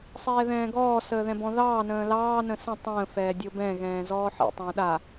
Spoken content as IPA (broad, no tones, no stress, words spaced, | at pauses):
sˤɛːðɛ̃ːɡɔː səːðɛ̃bɔ̃ðɑː nə̃ːlɑː nə̃sə̃ tˤə̃ː fɛːdʲobɛ̃ ɣɛ̃ːzɔːħḭ tˤə̃ːɗa